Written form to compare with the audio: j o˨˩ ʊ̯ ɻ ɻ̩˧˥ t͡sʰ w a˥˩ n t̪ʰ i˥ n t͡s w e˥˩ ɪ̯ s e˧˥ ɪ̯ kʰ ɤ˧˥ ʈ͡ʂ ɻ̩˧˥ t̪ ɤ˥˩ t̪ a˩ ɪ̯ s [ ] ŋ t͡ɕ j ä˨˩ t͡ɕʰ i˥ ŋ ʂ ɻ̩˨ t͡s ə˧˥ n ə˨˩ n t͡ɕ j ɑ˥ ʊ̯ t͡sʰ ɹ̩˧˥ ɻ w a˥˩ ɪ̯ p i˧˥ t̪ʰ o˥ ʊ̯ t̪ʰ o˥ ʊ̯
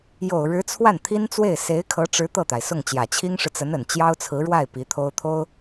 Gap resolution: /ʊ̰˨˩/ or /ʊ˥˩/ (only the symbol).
ʊ˥˩